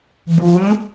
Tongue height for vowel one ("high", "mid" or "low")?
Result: high